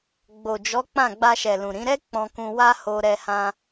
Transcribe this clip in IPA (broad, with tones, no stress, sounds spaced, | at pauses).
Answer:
ɡ͡b o˨ d͡ʒ ɔ˨˦ k͡p ã˦˨ ɡ͡b a˧ ʃ ɛ˨ l ũ˨ ɾ ĩ˨˦ ɾ ɛ˦ k͡p ɔ̃˧ k ũ˧ w a˦ h o˧ ɾ ɛ˧ h ã˧